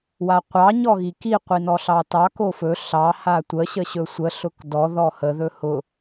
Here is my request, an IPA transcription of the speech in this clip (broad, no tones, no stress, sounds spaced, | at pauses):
w a qʷ ɑ ɲ ɔ ɣ i k i qʷ i n ɔ ɬ ɑ t ɑ k o f ɵ ɬ ɑ h a tʷ ə ɕ ə ɕ ɵ sʷ ə ɬ ʊ k d ɔ ð ɔ h ə ð ɵ h ʊ